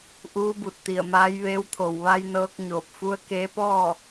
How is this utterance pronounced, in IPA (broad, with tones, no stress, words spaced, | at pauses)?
ʔuː˧˥bu˧˩t̚t̪i˧˩ə̯maː˧˥j ʋeː˧˥wt̪ʰo˧˩w ʋa˧jnɤː˧k̚ ɲoː˧˩p̚fu˧˥ə̯ keː˧˥pɔː˥˨